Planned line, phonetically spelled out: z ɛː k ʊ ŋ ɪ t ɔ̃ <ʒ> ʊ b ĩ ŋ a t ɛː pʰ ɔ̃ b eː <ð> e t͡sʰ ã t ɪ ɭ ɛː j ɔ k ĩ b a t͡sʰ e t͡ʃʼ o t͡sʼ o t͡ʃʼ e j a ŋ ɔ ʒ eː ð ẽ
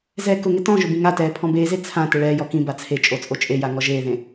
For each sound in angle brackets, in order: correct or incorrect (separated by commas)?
correct, incorrect